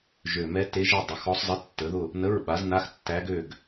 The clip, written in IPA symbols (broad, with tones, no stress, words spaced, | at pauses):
ʒø˨˩mɛ˧˥te˧˥ ʒə˥˨ dˤə˩˥xɔ˧˥sˤ zˤə˧˥˧tːə˩˥ðʊ˥˨ | nə˧˥˧ɹɓa˩˥z na˧˥˧xtːæ˧˥ɡø˥˨ɡ